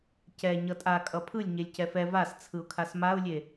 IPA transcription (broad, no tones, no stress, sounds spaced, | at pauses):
c ɛ ɲ ʌ tʼ a kʼ ʌ pʰ ɯ lʲ ɲ e lʲ c ɛ f ɛ v a s t͡sʰ ɯ ʊ̯ kʰ a s m a ʊ̯ lʲ e